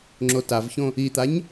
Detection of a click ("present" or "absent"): present